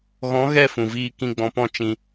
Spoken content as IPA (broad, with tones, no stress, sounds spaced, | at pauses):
ɣ ɔ̃˨˦ ɣ ɛ˦˨ f ũ˨ v iː˧ k ĩ˧ ɡ͡b ɔ̃˧ p ɔ̃˦˨ t͡ʃ ĩ˧